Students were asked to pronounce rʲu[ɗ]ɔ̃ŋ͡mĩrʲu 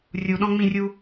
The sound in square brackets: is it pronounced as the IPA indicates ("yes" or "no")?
yes